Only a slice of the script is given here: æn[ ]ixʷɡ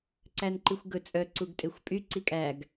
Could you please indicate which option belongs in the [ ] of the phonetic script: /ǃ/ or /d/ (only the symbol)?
ǃ